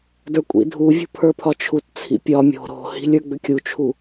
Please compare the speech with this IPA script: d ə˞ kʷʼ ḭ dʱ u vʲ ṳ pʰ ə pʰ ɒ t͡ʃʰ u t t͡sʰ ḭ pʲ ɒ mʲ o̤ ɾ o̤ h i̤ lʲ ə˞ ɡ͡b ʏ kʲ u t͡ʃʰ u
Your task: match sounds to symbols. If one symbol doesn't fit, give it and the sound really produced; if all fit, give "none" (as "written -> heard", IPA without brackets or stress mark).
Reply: ə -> ə˞